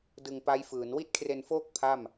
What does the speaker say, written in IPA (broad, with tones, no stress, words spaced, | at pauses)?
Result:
dɯ˧ŋpa˦˥jfɯː˩˦n wi˥˩t̚kʰre˧nfoː˥˩k̚ pʰa˥˩m